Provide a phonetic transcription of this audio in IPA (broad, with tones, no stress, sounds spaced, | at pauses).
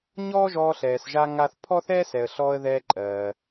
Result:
ɲ ɔː˥ ʒ ɔː˧ ɬ ɛː˩ s ʒ a˧ ŋ a˧ θ pʰ ɔ˥ θ ɛː˥ s ɛ˩ ə̯ ɬ ɔː˧ ə̯ ð ɛː˧ ǃʼ ɜː˩